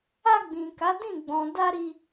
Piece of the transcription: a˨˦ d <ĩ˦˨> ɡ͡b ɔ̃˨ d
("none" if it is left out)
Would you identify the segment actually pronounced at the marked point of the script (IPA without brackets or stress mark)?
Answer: ĩ˦˨